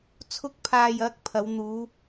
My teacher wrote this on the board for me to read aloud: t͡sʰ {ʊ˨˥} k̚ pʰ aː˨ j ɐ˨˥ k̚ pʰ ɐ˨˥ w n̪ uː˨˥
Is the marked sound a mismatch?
yes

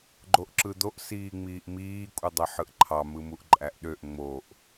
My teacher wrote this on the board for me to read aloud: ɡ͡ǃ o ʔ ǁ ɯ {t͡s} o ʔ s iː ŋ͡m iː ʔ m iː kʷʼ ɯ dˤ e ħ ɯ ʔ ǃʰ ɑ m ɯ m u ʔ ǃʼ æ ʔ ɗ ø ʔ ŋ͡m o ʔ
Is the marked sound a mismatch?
yes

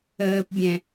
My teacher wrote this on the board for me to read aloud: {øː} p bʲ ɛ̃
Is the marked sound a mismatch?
yes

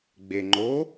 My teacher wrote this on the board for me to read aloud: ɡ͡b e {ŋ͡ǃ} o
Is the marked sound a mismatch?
no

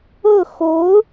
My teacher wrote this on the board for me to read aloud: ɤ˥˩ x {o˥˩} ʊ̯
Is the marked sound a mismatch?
yes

